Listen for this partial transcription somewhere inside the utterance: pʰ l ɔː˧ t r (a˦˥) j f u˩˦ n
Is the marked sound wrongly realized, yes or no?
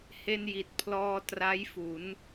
no